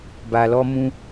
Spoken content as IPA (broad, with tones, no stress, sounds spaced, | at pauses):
b a˨ l ɔ˧ m ũ˧